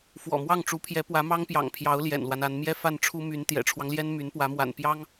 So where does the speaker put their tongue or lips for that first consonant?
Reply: lips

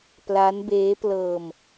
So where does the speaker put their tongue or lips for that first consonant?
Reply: lips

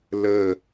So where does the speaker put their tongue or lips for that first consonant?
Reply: tongue tip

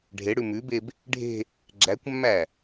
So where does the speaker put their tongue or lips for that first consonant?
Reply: retroflex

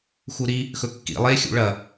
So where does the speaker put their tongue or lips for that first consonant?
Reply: velum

